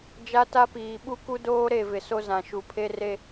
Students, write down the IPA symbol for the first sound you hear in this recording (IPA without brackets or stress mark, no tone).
d͡ʒ